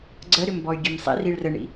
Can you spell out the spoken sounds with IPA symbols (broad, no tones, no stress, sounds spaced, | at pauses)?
ɡ͡ǀ ə ɾ ʏ m b ɔ y̯ ɡʲ ɘ m sˤ ḭ r i ɭ r ə ɳ ḭ